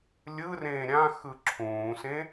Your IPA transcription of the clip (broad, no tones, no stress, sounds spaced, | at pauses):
lʲ ɯ r ẽː ɾʲ ã x ɯ ǁʰ ũː s ẽ